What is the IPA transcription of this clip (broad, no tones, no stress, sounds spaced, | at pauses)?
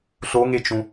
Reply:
ɬ o ŋ e t͡ʃ ũ